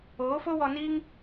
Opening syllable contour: rising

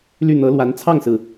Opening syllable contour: falling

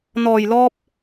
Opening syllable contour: low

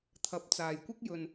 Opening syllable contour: low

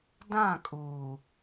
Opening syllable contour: falling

